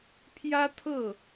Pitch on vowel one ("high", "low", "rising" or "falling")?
high